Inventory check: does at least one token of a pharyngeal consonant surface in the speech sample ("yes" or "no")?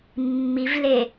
no